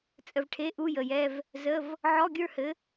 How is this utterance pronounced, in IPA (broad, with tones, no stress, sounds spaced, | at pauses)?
t͡sʼ ə˨ v ʈʰ e˧˥˧ ʔ u˧˥˧ j ə˨ j ɛ˧˥˧ v | z ə˧˥˧ v | ʕ ɔ˧˥˧ ɡʲ ə˞˥˧ h ɘ˨˥